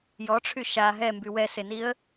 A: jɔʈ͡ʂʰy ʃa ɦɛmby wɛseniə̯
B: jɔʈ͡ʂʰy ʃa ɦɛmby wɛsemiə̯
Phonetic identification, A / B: A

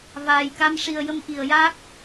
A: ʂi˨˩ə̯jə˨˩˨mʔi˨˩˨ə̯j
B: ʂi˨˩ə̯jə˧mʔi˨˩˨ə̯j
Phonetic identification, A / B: B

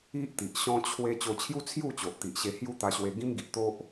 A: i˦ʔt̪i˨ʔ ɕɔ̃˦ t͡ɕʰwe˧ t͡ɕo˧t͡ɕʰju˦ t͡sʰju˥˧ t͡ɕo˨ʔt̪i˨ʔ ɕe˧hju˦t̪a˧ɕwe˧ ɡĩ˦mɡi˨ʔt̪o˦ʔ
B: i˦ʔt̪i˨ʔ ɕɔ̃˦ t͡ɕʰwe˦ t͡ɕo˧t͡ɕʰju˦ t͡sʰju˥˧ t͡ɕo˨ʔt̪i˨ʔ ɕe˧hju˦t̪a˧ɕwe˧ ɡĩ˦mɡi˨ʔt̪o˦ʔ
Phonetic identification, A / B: B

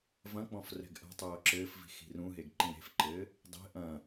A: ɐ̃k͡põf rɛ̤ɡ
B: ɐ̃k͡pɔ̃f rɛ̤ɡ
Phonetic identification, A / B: B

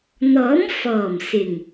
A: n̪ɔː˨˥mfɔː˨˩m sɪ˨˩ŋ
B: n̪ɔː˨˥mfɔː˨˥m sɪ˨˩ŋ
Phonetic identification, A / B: A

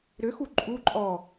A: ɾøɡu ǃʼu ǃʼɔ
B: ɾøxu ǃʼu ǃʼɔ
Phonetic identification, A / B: B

